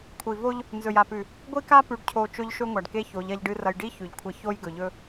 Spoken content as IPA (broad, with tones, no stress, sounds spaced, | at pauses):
kʷʰ i˨ v o˦ ʎ | n z ɵ˨ j a˨ p ʉ˨ | ɡʷ i˦ k a˦ p ʉ˨ ɖ cʰ o˨ t͡ʃ ɵ˦ ʎ ʃ ɵ˦ ŋʷ a˨ ɖ k e˦ ç o˨˦ ʎ ɐ˦ ʎ ɖ ɨ˦ r ɐ˦ j ɖ i˦ ç ʉ˨ ʎ kʷʰ ɐ˦ ç o˦ j ɡ ɵ˨ ʎ ɵ˦